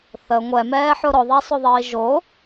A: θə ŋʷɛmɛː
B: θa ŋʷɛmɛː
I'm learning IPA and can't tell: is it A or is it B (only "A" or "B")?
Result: A